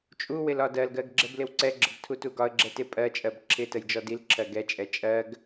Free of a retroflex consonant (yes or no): yes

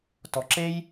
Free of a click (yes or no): no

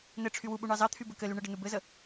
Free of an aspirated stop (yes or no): no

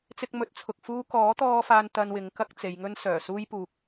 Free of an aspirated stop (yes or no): no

